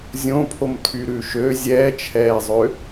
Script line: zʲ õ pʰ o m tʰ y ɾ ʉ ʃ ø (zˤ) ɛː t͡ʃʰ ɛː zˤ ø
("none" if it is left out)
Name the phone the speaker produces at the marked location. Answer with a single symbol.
zʲ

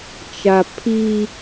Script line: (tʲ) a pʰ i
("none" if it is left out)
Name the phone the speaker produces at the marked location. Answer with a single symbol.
t͡ʃ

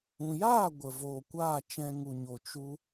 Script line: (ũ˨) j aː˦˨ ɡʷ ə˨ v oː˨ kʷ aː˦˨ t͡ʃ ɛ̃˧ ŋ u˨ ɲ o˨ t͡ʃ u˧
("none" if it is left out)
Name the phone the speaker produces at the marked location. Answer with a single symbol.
ũ˨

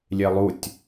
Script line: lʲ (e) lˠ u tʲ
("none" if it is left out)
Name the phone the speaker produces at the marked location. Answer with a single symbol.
e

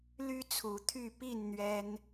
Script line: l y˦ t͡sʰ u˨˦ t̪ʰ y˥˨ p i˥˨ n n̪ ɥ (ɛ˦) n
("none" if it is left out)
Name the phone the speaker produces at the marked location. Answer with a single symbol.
ɛ˦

